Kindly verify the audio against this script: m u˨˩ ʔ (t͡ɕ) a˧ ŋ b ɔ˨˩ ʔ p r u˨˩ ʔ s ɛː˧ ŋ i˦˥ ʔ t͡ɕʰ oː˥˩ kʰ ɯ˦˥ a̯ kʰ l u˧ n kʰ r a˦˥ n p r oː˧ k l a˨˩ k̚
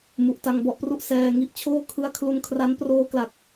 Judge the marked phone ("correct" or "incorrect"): incorrect